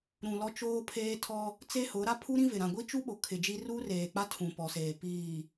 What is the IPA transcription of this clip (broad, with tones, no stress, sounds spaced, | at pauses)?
ɾ ũ˨ l ɔ˦ t͡ʃ oː˦ pʰ eː˦ tʰ ɔ˦ | t͡s e˦ h ʊ˨˦ ɾ a˦ pʰ u˦ ɾ ĩ˦ v ɪ˨ ɾ ã˨ ɡʷ i˦ t͡ʃ u˦ ɓ o˨ kʰ ɪ˨ d͡ʒ i˦ r uː˦ r eː˨ k͡p a˦ tʰ ũ˨ p ɔ˨ s eː˨ p iː˨